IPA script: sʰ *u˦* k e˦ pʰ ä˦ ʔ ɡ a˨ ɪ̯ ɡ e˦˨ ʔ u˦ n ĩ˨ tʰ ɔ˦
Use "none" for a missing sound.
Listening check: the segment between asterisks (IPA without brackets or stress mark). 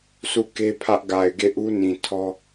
u˦˨